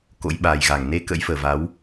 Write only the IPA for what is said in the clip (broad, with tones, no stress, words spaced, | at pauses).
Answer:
ko̰˧˥jɓaː˨˩jɣa˧˩ŋ ne˧kə̰˧˥jfəː˨˩ va˨˦w